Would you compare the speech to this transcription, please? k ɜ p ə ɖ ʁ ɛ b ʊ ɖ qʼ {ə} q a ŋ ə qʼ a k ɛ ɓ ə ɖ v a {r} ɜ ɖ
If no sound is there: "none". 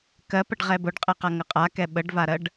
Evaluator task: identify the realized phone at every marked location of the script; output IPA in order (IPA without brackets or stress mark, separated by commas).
ɛ, ɾ